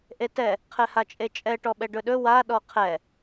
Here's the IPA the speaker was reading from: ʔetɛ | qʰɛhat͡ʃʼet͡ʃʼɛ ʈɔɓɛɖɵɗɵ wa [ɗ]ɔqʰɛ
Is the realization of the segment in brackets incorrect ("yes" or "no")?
no